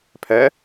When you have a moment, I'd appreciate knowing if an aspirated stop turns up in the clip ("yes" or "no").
yes